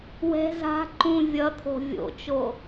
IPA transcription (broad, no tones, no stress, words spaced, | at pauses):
wɛ̤ za̤ ǃũ vʲʌt̪ʰo̤ vʲo̰t͡ʃo